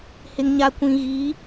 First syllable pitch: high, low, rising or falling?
low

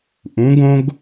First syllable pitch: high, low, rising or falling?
rising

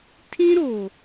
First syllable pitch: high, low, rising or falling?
high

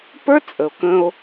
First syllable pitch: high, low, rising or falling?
high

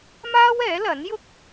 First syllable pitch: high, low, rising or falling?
high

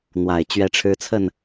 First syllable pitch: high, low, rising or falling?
low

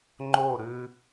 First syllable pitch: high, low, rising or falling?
falling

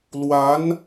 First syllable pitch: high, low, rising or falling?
rising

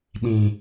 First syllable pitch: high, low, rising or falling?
low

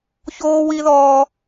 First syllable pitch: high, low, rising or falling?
high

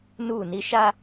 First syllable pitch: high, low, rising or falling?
falling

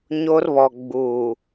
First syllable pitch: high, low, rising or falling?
high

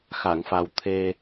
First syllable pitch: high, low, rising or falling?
low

